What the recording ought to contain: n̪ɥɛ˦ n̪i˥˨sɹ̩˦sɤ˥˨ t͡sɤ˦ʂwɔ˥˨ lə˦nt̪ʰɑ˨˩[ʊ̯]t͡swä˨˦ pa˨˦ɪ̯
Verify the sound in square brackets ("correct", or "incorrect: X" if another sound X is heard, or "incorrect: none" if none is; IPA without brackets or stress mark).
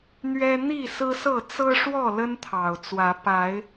correct